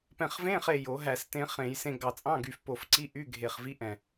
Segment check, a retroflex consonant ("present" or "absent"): absent